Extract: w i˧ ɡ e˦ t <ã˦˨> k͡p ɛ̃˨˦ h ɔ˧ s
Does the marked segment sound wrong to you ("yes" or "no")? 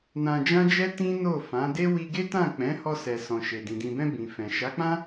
no